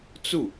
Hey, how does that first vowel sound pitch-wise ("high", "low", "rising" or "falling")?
falling